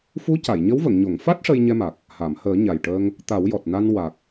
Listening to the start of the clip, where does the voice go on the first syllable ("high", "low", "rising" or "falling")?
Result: rising